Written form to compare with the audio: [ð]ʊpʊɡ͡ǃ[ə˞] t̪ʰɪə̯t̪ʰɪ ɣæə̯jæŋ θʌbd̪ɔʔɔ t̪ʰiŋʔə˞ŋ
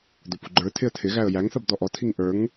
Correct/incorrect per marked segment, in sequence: incorrect: d̪, correct

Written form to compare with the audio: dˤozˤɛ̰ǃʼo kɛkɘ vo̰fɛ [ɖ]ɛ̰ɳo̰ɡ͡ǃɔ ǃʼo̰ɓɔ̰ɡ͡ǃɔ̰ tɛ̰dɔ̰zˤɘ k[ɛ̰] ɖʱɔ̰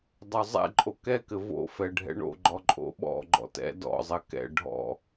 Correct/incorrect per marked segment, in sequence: incorrect: ɖʱ, correct

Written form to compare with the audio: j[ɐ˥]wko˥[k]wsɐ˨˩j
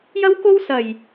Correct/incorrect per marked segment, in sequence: correct, incorrect: none

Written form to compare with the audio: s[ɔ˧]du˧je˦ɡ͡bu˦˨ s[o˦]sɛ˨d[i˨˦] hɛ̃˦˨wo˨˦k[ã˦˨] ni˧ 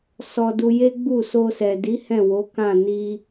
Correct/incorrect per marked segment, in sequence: correct, incorrect: o˧, correct, correct

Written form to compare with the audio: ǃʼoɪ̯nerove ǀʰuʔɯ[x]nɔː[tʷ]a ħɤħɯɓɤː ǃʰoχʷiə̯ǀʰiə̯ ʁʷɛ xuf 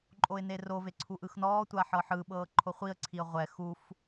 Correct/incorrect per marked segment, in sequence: correct, correct

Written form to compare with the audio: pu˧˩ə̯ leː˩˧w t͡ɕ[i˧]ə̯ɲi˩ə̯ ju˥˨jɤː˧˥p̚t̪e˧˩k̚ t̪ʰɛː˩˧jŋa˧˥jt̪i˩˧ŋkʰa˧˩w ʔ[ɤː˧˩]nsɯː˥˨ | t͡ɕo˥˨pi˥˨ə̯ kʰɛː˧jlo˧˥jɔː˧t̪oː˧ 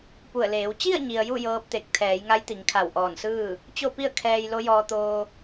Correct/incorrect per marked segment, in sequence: incorrect: i˥˨, incorrect: ɔː˧˩

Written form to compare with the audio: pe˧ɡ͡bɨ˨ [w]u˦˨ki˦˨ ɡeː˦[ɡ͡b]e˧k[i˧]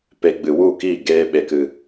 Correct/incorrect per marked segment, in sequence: correct, incorrect: ɓ, incorrect: ɨ˧

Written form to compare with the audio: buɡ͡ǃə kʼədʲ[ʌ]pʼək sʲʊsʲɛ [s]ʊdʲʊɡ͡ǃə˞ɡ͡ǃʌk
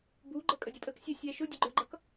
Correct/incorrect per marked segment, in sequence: correct, incorrect: ʃ

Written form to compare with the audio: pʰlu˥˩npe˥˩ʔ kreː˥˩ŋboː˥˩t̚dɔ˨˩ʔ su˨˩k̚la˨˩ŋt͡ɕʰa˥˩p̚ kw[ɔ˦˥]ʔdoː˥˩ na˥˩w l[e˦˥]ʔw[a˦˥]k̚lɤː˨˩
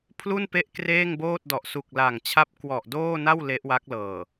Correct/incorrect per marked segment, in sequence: incorrect: ɔ˨˩, correct, correct

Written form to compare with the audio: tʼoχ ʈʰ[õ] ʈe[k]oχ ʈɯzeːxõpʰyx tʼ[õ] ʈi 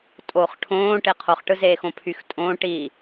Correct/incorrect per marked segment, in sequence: incorrect: õː, incorrect: qʰ, incorrect: õː

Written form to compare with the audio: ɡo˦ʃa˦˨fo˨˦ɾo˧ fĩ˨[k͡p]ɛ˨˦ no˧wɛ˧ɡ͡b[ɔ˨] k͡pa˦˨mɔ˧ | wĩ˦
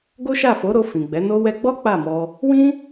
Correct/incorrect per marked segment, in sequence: incorrect: ɡ͡b, incorrect: ɔ˦

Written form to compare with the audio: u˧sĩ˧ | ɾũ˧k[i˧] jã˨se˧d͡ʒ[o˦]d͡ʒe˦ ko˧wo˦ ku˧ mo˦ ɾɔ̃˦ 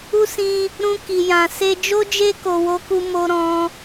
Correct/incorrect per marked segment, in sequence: incorrect: i˨, correct

